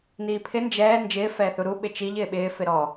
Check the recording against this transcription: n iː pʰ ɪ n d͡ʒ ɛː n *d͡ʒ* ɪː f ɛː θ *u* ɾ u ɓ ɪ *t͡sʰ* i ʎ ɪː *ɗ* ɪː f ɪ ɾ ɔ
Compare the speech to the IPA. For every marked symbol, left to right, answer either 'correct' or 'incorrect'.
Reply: correct, correct, incorrect: t͡ʃ, incorrect: ɓ

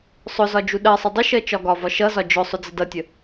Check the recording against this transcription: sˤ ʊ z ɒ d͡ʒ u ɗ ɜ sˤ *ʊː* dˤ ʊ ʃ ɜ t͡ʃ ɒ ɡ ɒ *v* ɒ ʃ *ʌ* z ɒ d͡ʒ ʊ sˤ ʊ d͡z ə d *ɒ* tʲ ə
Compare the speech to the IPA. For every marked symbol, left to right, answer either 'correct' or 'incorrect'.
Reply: incorrect: ʊ, correct, correct, incorrect: ʌ

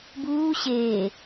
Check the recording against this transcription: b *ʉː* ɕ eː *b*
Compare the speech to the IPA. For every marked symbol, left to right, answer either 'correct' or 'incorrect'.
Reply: incorrect: uː, incorrect: none

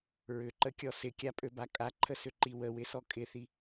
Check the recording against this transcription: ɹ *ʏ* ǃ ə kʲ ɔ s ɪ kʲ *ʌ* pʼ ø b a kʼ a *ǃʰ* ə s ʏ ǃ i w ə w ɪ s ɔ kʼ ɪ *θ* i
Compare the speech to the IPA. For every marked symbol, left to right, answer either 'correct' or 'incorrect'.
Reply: correct, incorrect: a, correct, correct

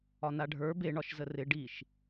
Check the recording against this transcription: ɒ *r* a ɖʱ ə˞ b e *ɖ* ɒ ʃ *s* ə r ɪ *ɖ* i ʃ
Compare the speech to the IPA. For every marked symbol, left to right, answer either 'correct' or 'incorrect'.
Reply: incorrect: n, incorrect: ɳ, incorrect: z, correct

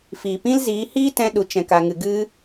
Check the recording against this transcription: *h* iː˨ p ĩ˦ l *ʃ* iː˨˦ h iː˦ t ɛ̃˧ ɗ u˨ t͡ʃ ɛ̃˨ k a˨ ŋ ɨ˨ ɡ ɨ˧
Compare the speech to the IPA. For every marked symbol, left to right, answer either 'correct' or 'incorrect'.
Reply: incorrect: f, incorrect: z

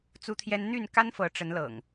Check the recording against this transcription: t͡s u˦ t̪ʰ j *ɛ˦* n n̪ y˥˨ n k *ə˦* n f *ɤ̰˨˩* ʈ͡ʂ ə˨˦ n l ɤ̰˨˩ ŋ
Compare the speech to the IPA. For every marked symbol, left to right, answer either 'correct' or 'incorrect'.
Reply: correct, incorrect: a˦, incorrect: ɤ˨˦

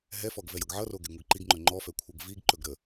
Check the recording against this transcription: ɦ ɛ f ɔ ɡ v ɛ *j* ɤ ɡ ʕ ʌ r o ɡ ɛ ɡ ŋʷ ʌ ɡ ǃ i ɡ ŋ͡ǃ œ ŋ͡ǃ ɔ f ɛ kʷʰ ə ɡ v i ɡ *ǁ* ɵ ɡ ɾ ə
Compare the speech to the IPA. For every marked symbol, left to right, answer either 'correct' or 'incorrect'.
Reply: correct, incorrect: ǃ

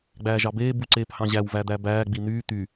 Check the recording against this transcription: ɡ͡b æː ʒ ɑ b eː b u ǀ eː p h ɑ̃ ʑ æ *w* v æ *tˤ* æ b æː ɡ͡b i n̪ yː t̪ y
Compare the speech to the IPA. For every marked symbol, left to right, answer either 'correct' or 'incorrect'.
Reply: correct, incorrect: d̪

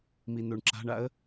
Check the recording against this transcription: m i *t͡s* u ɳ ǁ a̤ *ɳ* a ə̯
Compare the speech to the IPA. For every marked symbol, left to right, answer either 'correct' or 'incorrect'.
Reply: incorrect: n̪, correct

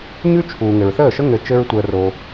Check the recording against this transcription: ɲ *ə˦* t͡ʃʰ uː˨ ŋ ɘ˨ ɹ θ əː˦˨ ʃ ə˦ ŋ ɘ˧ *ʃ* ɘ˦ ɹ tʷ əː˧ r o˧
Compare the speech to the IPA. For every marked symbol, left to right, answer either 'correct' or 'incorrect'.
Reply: incorrect: ʉ˦, incorrect: t͡ʃ

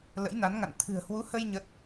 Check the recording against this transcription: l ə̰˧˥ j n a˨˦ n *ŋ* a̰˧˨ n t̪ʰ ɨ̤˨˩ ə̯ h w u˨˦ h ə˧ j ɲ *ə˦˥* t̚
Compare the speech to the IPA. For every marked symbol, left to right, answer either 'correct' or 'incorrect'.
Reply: correct, correct

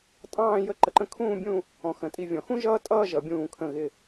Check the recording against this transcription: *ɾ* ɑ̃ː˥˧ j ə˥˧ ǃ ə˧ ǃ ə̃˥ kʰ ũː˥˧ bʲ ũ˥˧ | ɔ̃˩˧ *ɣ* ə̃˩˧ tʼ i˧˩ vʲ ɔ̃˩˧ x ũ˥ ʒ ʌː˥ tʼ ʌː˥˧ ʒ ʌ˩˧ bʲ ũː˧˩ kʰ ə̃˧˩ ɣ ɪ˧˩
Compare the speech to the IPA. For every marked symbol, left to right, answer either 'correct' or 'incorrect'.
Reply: incorrect: tʼ, incorrect: x

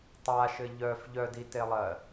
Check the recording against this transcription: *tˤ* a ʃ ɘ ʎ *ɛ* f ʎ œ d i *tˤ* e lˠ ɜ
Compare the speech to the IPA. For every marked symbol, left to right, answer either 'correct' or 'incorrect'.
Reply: correct, incorrect: œ, incorrect: t

